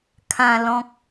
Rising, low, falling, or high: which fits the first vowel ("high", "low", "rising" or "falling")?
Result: low